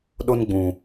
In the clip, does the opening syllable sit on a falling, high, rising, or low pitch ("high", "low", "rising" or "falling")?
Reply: high